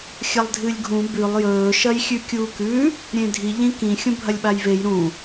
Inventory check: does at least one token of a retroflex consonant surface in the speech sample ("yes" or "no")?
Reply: no